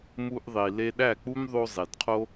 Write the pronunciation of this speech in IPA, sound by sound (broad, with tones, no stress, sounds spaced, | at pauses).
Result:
m u˧ ʔ ðˤ i˨ l e˧ ɗ æ˦˨ k͡p u˦ m ðˤ o˧ zˤ i˨ d qʰ o˦